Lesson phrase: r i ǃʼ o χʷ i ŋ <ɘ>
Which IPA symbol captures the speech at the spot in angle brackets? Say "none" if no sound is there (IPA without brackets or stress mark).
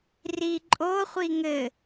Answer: ɘ